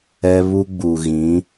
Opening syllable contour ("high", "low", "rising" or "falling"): high